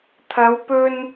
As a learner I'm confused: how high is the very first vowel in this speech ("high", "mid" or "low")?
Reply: low